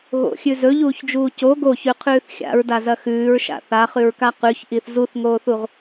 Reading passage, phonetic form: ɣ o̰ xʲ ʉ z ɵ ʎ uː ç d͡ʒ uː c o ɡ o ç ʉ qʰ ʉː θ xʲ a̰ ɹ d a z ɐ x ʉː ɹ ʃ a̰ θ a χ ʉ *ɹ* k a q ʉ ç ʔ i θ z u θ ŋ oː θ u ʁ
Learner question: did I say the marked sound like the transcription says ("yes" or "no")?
yes